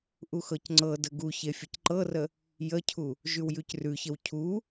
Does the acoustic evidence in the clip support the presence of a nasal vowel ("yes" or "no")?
no